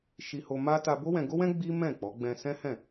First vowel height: high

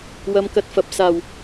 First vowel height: low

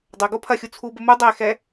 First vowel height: low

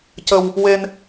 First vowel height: mid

